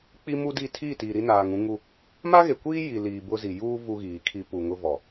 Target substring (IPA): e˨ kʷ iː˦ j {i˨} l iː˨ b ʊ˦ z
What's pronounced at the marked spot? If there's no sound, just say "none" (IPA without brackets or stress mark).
i˨